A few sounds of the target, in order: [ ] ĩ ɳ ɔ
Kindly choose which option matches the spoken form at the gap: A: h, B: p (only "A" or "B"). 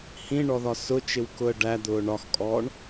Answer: A